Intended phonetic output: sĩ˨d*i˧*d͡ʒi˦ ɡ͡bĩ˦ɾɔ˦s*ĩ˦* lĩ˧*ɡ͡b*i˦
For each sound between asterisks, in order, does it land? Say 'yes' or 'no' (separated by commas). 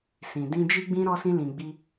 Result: no, yes, yes